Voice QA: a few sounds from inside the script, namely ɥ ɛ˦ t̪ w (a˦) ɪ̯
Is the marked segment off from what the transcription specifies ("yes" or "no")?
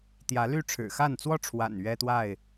yes